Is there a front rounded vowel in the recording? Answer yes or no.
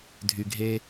yes